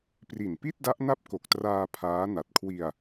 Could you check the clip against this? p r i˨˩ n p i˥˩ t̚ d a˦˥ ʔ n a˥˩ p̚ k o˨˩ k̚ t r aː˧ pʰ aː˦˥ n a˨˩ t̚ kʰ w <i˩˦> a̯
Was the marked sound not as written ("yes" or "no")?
yes